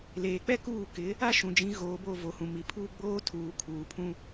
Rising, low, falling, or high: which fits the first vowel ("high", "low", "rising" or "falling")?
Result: low